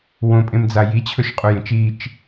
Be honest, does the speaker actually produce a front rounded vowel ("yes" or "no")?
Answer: no